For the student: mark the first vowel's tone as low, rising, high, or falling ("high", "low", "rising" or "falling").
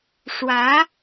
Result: rising